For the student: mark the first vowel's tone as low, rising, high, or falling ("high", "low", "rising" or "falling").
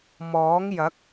rising